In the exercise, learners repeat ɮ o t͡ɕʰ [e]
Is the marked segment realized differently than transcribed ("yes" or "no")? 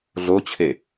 no